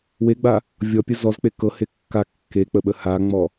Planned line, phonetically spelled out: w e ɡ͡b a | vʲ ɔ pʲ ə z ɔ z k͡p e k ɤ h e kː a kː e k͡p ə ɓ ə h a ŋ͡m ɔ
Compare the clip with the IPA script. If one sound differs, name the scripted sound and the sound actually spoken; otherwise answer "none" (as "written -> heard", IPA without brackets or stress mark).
none